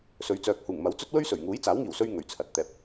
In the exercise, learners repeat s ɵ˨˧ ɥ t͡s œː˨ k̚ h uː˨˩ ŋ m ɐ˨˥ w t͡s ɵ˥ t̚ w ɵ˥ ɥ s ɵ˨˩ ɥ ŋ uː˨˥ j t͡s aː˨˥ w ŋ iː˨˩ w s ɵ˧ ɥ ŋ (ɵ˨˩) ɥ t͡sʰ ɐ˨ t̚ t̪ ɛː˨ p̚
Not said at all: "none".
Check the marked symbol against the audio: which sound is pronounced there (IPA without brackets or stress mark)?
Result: ɵ˨˩